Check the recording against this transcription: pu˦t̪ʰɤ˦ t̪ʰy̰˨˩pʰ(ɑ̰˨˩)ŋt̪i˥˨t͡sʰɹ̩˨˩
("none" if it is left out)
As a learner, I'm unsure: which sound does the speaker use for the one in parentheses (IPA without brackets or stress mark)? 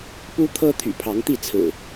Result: ɑ˨˦